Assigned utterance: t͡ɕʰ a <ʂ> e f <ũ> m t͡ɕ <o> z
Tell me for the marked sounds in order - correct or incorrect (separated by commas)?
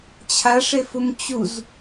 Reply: correct, incorrect, incorrect